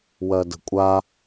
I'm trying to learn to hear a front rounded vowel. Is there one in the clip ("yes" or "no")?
no